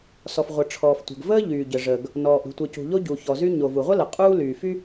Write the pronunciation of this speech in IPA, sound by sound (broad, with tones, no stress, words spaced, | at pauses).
sɔ˩fʁʷə˩ʈ͡ʂʰɔː˩ftʷə̤˩ɡ vəː˥ʎyː˩ɟə˩ ʐəː˩ɡ | nɔː˩ʔ ɾṳ˩tʷəː˩cṳ˩ʎo˥ ɟu˩ çɔ˩zy˥ ɲo˩vu˩ʁʷə˥ lə˩qʼuː˥ lyː˩fy˥